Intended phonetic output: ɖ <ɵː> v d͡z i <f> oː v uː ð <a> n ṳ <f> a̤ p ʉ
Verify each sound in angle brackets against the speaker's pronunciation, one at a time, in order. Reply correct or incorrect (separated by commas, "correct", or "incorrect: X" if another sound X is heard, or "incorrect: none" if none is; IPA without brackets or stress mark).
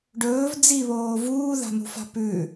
correct, incorrect: β, incorrect: a̤, correct